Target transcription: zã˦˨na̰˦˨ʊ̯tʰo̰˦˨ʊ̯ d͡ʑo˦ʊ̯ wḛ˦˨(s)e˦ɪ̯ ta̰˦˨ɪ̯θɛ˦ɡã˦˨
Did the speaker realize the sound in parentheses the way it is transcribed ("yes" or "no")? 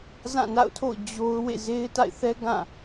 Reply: no